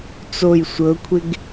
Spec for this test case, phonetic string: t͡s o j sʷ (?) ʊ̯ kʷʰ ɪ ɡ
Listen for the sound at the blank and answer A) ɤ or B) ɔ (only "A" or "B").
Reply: A